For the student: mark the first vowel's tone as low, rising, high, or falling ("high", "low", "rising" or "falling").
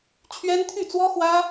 high